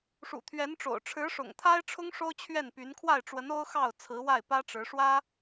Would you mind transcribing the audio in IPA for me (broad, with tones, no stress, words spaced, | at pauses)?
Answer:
ʂṵ˨˩t̪ʰɥɛ˧˥nʈ͡ʂo̰˨˩ʊ̯ ʈ͡ʂʰɻ̩˧˥ʂʊ̰˨˩ŋt̪ʰa˥ɪ̯ʈ͡ʂʰʊ˥ŋ ʂo˥ʊ̯t͡ɕʰɥɛ˥˩npy˧˥n kʰwa˥˩ɪ̯ʈ͡ʂwə˧˥no˥ʊ̯xɑ˥˩ʊ̯ t͡sʰɹ̩˧˥wa˥˩ɪ̯pä˥ ʈ͡ʂɻ̩˧˥ʂwä˥